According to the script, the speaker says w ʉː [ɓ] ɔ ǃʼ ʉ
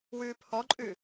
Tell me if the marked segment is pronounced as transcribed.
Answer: no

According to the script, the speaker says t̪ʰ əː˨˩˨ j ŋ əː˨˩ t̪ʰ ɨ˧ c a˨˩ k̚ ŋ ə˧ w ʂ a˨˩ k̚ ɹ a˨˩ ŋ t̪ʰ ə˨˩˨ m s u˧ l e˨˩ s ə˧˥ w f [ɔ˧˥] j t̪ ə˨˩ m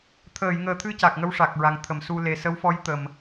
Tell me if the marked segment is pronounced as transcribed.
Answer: yes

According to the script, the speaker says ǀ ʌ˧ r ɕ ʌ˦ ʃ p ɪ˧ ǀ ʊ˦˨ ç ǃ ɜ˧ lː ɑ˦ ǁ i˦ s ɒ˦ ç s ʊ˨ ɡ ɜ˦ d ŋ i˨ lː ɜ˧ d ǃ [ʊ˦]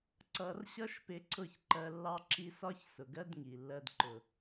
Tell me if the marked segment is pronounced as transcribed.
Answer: no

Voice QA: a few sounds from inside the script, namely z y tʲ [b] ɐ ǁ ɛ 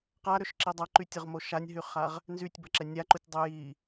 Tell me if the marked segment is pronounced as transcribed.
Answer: yes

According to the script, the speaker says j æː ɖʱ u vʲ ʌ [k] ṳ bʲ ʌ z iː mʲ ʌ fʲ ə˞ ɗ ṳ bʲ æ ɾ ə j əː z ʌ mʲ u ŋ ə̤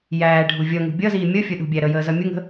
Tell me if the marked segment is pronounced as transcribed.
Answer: no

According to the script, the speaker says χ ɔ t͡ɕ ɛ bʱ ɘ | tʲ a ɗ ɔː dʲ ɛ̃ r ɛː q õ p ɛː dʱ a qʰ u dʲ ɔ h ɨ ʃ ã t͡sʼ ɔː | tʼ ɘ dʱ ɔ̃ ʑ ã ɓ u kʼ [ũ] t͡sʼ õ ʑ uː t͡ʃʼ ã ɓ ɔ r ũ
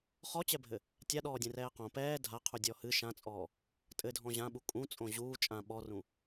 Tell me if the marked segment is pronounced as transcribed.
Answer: yes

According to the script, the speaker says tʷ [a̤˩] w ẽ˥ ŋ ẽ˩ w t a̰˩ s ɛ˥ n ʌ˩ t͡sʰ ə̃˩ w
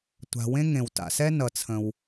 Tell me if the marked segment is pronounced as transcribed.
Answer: yes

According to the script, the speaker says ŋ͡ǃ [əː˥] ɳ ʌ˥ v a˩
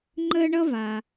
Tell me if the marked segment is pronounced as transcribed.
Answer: yes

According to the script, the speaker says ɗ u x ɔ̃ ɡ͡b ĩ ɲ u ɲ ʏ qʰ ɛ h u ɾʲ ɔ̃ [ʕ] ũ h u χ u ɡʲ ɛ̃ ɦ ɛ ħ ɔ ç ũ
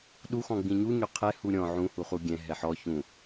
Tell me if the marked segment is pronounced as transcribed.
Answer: yes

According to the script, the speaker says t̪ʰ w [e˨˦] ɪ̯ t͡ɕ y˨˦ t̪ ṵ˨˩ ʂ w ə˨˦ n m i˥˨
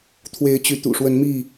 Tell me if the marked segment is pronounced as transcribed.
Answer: yes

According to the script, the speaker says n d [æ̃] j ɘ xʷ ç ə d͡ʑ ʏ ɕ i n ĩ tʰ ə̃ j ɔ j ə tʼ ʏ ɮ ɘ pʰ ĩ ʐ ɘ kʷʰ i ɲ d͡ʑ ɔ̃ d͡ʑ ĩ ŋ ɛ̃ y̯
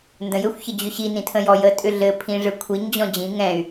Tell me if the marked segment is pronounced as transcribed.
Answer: no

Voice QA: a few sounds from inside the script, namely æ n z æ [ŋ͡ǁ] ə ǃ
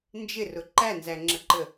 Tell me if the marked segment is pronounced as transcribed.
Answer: yes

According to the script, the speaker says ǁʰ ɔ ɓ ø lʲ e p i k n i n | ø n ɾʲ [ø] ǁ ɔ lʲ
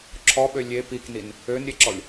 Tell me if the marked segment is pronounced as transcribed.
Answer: no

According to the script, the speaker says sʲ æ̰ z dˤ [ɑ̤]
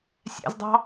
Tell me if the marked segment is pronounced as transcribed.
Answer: yes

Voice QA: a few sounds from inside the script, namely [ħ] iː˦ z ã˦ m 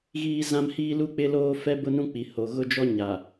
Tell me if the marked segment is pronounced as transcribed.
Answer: no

